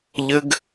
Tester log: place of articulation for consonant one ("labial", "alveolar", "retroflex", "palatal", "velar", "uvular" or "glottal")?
palatal